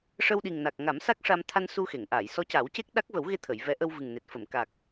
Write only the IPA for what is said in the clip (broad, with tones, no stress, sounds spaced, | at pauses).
ʂ ə˧ w ɗ i˨˩ ŋ n a˨˩ k̚ ŋ a˨˩˦ m s a˦˥ k̚ ʂ a˧ m t̪ʰ a˧ n s u˧ x e˨˩˨ ŋ ʔ a˨˩˨ j s ɔ˧˥ c a˨˩˦ w c e˦˥ k̚ ɗ a˦˥ k̚ v ə˨˩˦ w ɣ e˧ t̪ʰ ə˨˩˨ j v ɛ˧˥ ʔ ə˧ w v ɨ˨˩ ŋ n e˨˩ t̚ f ə˨˩˨ m k a˨˩ k̚